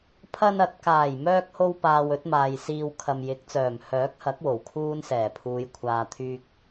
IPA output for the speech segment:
pʰɐ˧nɐ˨˥t̚kaː˨˩j mœː˧k̚ho˧w paː˨w ɵ˨˥t̚maː˨jsiː˧w kʰɐ˨mjɪ˨˥k̚t͡sœː˨˩m hœː˨˥k̚hɐ˨˥k̚ wo˨˩wkʰuː˥nsɛː˨˩ pʰuː˨˧jkʷʰaː˧t̪ʰyː˥k̚

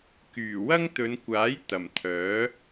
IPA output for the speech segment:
kyː˨˩ wɐ˥ŋt̪ɵ˨˧nkʷaː˨˥j t̪ɐ˨˩mt̪ʰœː˨˥

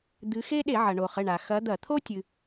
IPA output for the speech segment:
d̪ɨ˨˦xe˥ ɗe˧˩˧ʕɐ˩ɳo˩χɘ˩˧˩ ɳa˩ xɐ˨˦d̪ɐ˧˩˧t̪ʰo˥ tʲɨ˩

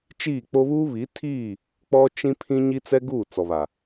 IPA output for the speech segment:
t͡ʃiː˦˨k͡po˦ βuː˦βi˨˦tʰiː˦˨ | k͡pɔ˦t͡ʃĩ˦ pʰĩ˦ ɲi˦t͡sɛ˦ɡuː˦˨ t͡sɔ˨βa˨

